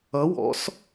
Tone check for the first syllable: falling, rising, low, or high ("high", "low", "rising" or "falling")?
rising